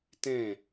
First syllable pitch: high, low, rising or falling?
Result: falling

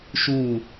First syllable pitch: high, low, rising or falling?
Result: falling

